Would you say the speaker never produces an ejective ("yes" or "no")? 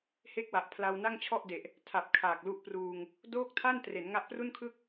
yes